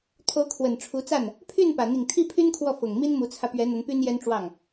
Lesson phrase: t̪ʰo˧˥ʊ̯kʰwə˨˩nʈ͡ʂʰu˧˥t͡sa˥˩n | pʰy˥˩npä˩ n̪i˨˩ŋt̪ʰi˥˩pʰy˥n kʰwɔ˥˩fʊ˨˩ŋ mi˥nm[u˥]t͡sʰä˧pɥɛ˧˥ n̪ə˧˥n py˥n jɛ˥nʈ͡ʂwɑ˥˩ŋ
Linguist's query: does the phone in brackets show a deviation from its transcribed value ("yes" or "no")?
yes